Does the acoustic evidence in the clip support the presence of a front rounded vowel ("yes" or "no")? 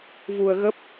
no